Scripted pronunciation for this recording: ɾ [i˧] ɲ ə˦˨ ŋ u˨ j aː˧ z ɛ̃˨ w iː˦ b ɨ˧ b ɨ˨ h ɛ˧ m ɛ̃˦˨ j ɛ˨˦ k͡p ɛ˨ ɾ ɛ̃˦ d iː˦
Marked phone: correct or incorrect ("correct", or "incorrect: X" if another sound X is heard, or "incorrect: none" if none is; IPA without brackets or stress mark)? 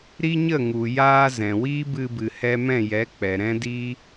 incorrect: i˦